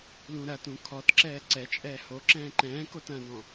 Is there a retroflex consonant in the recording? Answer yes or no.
no